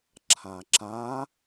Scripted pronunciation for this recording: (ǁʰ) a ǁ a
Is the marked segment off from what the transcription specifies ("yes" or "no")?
no